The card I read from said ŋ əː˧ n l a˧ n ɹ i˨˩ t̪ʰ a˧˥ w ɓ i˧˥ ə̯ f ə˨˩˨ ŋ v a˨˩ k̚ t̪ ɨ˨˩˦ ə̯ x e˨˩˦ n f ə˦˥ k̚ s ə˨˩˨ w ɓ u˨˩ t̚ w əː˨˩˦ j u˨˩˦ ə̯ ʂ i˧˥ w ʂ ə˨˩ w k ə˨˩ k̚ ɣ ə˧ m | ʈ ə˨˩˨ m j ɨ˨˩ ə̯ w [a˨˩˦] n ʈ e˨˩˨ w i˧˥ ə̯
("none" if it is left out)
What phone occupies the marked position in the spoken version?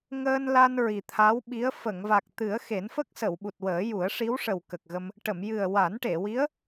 a˨˩˦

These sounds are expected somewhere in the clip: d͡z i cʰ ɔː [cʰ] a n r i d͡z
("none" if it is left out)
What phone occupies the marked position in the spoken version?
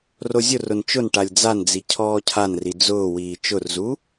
cʰ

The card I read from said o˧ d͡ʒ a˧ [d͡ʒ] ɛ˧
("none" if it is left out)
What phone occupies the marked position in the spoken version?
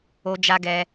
ɡ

